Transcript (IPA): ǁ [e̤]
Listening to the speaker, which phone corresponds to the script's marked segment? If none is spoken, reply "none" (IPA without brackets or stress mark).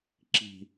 i̤